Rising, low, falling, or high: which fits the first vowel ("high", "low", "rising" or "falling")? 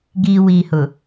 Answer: low